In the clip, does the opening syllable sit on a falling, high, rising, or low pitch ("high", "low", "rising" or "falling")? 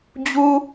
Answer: high